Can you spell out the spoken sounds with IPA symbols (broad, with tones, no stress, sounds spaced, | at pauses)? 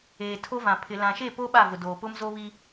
eː˨ tʰ o˦ v ã˨ pʰ ɪ˨ l ã˨ ʃ e˦˨ p o˦ ɓ a˦˨ v ʊ˨ d oː˨ p ʊ˦ m z o˦ β i˦